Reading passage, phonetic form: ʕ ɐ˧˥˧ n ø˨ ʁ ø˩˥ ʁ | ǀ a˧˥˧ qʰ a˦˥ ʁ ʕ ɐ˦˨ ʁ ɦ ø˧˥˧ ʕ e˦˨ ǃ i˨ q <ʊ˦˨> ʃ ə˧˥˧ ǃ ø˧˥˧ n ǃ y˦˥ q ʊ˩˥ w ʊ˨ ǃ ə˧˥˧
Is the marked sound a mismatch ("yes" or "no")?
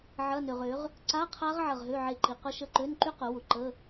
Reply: yes